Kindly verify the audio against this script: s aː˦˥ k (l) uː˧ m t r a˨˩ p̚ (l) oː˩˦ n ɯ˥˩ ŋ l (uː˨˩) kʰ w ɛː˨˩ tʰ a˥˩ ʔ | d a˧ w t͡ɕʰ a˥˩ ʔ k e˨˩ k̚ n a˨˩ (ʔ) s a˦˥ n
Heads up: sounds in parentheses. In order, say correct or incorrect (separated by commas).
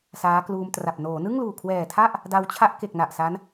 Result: correct, incorrect, correct, correct